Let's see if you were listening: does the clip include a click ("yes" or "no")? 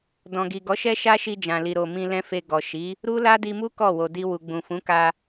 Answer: no